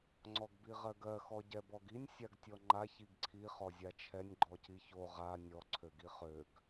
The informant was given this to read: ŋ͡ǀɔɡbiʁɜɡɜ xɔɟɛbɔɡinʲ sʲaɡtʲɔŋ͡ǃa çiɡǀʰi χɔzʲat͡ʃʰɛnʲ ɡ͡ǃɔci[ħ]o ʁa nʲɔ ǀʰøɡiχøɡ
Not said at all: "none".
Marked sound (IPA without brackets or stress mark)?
ç